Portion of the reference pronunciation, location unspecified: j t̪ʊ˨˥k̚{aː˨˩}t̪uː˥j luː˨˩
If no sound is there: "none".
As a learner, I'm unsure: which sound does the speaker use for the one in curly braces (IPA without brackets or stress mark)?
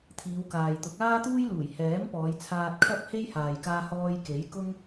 aː˥